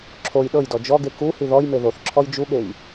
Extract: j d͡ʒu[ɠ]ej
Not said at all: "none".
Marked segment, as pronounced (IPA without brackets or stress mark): ɠ